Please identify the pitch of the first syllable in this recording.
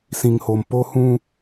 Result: low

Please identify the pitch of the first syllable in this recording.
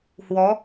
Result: rising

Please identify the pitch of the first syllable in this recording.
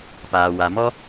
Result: low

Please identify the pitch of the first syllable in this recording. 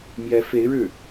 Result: rising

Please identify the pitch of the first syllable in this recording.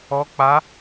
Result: rising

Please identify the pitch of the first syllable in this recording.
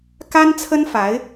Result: high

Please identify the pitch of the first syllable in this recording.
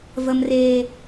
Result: high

